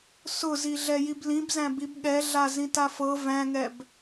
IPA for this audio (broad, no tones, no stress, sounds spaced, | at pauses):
s ʊ z i ɮ ɛ j i b l ĩ b z æ̃ b i b ɠ ɛ ɮ a z ĩ t a f ɤ v æ̃ ŋ ɛ b